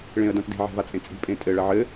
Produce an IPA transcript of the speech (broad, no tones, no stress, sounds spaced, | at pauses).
ɭ ẽ ə̯ d ã t d e̤ ʕ ɛ̤ v a t͡sʼ ẽ t͡sʼ i̤ pʼ ẽ tʼ ɘ ɭ ɐ ʕ ɘ